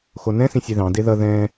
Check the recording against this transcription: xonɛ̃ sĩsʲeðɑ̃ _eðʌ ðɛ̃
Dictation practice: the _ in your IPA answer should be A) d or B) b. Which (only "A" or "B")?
A